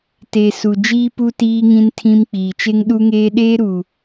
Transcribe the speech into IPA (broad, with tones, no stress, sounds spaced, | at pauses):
t e˨ s u˨ d͡ʒ iː˦ p u˦ t iː˦ ŋ ĩ˦ n tʰ ĩ˦ m k͡p iː˨ t͡ʃ e˦ ŋ ɗ u˦ ŋ eː˦ ɗ eː˦ ɾ u˨